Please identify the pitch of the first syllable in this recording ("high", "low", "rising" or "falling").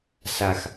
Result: low